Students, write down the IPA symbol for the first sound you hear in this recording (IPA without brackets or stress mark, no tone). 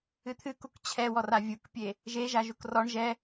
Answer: ɨ